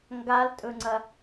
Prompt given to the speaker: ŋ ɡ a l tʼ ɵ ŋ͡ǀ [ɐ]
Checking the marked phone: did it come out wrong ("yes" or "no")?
no